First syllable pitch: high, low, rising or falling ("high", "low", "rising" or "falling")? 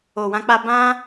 low